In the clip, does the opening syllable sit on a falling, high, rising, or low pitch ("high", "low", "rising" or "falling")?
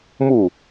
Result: falling